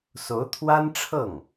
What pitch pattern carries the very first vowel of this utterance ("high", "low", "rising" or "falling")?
rising